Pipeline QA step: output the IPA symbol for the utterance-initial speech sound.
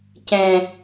c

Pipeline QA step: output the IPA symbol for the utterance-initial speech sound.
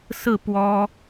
s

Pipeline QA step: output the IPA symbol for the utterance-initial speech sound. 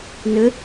n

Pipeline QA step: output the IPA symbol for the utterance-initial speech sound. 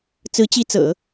t͡s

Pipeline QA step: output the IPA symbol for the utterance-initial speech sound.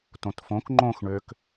t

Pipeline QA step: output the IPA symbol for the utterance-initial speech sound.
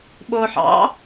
ɓ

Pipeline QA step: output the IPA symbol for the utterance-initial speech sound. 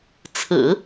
t͡sʰ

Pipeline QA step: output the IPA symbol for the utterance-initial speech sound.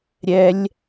ɾʲ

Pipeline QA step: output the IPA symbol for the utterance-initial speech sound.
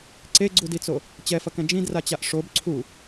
ǀ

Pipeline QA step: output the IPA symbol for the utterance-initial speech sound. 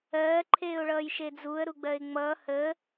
ɜː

